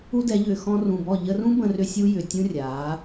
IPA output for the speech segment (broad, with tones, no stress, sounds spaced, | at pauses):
u˦ d ɛ˨˦ ʎ ʏː˨ x ɔ̃˧ r ũ˨ b ɔ˦˨ ʎ ə˧ r ũ˦ b ə̃˧ r ʏ˧ sʲ u˦ j ʏ˨ tʲ ũ˦ rʲ aː˨˦